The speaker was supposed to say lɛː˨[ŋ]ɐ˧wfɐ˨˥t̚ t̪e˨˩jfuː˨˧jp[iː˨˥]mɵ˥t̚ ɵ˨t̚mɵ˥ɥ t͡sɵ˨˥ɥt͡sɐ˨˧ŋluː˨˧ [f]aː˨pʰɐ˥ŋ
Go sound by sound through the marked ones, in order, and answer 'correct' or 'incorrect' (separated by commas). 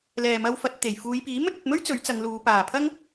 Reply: incorrect, correct, incorrect